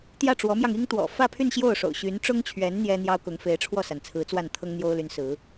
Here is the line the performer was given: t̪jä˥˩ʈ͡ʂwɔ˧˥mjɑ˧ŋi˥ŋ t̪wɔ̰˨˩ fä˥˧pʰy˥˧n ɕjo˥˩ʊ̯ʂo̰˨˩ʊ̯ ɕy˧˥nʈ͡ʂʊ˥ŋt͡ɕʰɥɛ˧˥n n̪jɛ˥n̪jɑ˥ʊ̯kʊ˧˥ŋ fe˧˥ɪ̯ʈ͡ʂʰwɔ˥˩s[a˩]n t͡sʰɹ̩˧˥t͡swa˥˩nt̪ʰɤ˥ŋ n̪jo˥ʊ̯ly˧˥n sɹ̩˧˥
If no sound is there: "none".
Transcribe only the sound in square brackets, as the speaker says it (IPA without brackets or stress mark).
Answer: a˩